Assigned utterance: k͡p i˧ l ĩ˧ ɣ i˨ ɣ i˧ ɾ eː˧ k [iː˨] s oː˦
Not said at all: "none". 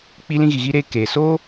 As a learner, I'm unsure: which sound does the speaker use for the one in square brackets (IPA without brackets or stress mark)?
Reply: eː˨